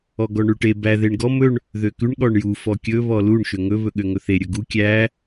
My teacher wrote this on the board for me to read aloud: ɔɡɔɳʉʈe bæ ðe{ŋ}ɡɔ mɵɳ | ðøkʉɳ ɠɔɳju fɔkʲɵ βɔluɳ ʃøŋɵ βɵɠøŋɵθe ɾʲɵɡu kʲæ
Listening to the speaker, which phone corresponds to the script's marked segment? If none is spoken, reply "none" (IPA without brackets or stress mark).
ɳ